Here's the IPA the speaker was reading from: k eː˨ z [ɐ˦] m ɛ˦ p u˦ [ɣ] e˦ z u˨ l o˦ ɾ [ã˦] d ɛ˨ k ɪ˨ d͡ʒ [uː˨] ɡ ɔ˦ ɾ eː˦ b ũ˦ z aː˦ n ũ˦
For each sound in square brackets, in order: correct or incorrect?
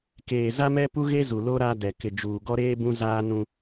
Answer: incorrect, correct, incorrect, correct

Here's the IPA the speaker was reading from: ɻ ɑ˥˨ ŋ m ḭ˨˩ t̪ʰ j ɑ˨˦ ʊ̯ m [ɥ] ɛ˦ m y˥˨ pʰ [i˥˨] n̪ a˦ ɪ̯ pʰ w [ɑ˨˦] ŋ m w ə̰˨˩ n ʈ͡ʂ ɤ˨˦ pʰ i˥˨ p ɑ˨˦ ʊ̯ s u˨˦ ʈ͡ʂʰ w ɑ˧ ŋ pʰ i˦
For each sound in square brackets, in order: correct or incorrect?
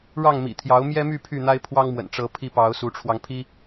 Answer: incorrect, incorrect, incorrect

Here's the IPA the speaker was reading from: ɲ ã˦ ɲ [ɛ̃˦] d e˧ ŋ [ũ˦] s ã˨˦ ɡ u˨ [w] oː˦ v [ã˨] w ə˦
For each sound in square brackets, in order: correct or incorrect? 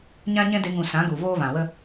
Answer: correct, incorrect, incorrect, correct

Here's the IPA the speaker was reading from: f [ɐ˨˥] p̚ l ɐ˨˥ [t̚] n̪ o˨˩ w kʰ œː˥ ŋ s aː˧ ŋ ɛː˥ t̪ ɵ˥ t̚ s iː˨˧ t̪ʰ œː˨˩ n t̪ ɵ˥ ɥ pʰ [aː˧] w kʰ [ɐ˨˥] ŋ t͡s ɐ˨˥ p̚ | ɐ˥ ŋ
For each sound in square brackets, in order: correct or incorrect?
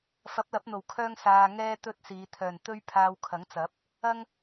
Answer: correct, incorrect, correct, correct

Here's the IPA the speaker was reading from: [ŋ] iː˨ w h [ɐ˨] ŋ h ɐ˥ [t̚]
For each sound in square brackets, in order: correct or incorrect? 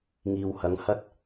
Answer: correct, incorrect, correct

